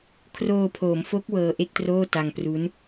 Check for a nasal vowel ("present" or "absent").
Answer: absent